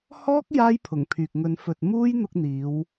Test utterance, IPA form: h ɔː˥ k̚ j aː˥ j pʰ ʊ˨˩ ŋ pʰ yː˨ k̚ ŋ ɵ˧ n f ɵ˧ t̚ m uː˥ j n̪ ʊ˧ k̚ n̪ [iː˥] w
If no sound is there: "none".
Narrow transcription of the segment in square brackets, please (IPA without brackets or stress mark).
iː˨˧